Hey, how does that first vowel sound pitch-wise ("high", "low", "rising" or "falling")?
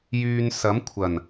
low